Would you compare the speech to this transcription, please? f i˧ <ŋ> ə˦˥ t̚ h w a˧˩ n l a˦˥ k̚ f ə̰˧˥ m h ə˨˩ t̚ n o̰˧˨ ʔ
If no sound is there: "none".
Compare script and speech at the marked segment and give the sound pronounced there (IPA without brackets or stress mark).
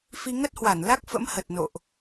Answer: ŋ